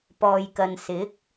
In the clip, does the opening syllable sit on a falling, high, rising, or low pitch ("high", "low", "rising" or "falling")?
low